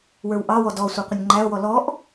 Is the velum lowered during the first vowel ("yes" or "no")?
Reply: no